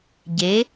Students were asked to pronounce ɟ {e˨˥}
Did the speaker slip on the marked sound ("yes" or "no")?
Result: no